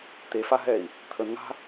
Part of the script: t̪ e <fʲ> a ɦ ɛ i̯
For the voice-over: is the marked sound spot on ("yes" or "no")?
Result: no